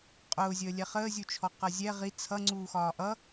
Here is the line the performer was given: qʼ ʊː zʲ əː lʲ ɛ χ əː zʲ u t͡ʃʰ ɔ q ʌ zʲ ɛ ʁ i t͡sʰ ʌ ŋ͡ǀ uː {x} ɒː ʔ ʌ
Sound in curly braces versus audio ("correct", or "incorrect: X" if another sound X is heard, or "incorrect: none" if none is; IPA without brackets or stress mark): correct